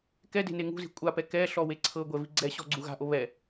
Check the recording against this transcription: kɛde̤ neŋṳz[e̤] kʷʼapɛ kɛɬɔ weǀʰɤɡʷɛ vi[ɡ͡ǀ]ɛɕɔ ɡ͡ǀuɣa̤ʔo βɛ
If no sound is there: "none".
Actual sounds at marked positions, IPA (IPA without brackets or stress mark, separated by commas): i̤, ɡ͡ǀ